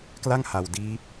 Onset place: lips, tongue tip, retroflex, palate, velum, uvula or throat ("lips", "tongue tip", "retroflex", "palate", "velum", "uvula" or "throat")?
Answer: velum